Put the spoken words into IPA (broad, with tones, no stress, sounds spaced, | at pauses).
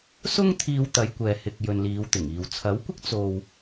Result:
s ʊ˥ ŋ t̪ʰ iː˧ w t̪ ɐ˨˧ j kʷ ɛː˨ h ɪ˨ k̚ j ɵ˨ n l iː˨˧ w t̪ ɪ˨˩ ŋ iː˨ w t͡sʰ ɐ˨˥ w kʷ ɪ˥ k̚ t͡s o˧ w